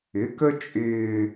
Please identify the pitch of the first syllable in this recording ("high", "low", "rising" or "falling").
rising